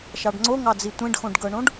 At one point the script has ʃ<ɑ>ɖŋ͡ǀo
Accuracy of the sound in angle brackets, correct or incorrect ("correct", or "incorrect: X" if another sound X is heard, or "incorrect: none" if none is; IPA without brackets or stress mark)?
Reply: correct